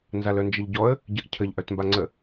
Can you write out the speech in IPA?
n z a l œ n d͡ʒ ə ʎ ɟ ɔ ə̯ | ɟ ə ʔ cʰ ə ʎ ʔ œ t m b a ŋ͡ǀ ə

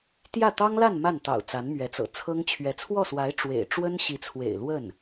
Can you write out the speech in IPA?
t̪ j ä˥˩ t̪ ɑ˥ ŋ l a˥˧ n m a˥˩ n t̪ ɑ̰˨˩ ʊ̯ t͡s a˧˥ n m ɥ ɛ˧˥ t͡s ɤ̰˨˩ t͡sʰ ɤ˥ ŋ t͡ɕʰ ɥ ɛ˧˥ t͡sʰ w ɔ˥˩ s w a˧˥ ɪ̯ ʈ͡ʂ w ḛ˨˩ ɪ̯ ʈ͡ʂ w ə˥ n ɕ i˧˥ t͡sʰ w ḛ˨˩ ɪ̯ l w ə˥˩ n

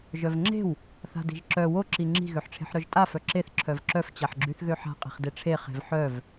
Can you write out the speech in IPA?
ʒ œ v ŋ͡ǁ e̤ w | θ a̤ d i̤ ʒ ǁ œ w o ǁ i ŋ͡ǁ i̤ ɣ ø ħ ʈ͡ʂʰ e̤ ħ ɾ œ ʒ tʼ a f œ ǁ e θ ǁʰ œ v ǁ œ f t͡ɕ a ħ ɡ͡ǁ y θ ɣ ø ħ a̤ qʼ i̤ χ d e ʈ͡ʂʰ e χ e̤ v ħ œ v

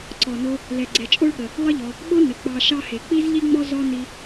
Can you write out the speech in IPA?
ǀ ɔ˩ n o˦ | l ɛ˩ ɡ͡ǀ ɛ˩ t͡ʃʼ o˦ ɭ ɠ ə˩ | lˠ ə˥ ʎ ɔ˨ | ɓ o˥ n ə˩ k͡p ɑ˨ ʃ ɑ˦ h e˩ k͡p i˥ z ʎ i˥ ŋ͡m ɔ˥ z ɔ˥ n i˦

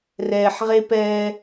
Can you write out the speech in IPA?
r ɛː˨ ħ ʁ e˦ p ɛː˦

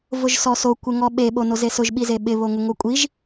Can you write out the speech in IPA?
v ʊ ʒ s ɔ s o kʷ ɪ ŋ ɔ ɓ e ɓ o n o z e s ʊ ʒ ɓ i z e ɓ ɪ β o ŋ ʊ ŋ o kʷʼ i ʒ

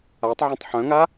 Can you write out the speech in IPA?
a tˤ ʕ œ̃ tˤ ħ œ̃ ŋ a

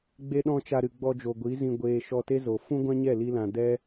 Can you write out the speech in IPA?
ɡ͡b e˦ ɗ ɔ̃˦ t͡ʃ a˧ ɾ ɨ˨ ɡ͡b ɔ˧ d͡ʒ o˨ ɡʷ i˨˦ z ĩ˧ ɡʷ eː˧ ʃ ɔ˧ t e˦ z o˨ f ũ˦ ɡʷ ã˦ ɲ ɛ˦˨ l i˦ l ã˧ d ɛ˦

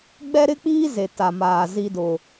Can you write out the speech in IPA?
ɡ͡b ɛ˦ ɾ ɪ˦ k͡p iː˦ z e˨ t a˨ m aː˨ z i˦ d ʊ˦

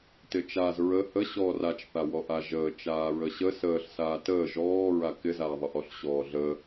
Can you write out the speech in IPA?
t ɪ t͡ʃ a z ɹ ə h ə ɕ ɔː r a t͡ʃ θ a w ɔ ʔ a ʒ əː t͡ʃ aː ɹ ə ɕ ə s əː ɬ s aː t əː ʒ ɔː ɹ a k ɪ z aː ðˤ ə ʔ ɔ ɬ ɕ ɔː ɮ ə

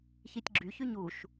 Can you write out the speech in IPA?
ç i tʲ ɡ͡ǁ y ç y ɲ u ʃ

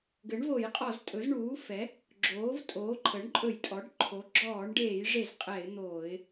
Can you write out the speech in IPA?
ɡ ɘ˩˥ ɳ v o˧˩˧ j qʼ ɔ˧˩˧ z tʼ ɵ˩˥ z ɳ uː˩˥ f ɛ˩˥ | ɡ͡ǁ oː˩˥ v tʼ oː˩˥ ǃʰ ə˩˥ ɳ ǃʼ ɵ˧˩˧ j tʼ ɔ˩˥ ɖ ǃʰ o˩˥ ɡ͡ǁ ɔː˧˩˧ ɳ ɖ eː˧˩˧ j ʐ e˧˩˧ z qʼ ɛ˧˩˧ ɪ̯ n̪ oː˧˩˧ ɪ̯

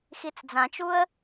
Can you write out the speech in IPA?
x i t͡s d͡z ã t͡ʃ u ə̯

